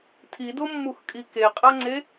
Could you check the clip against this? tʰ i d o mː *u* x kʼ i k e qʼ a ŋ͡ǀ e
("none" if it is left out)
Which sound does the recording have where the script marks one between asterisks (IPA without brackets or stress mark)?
u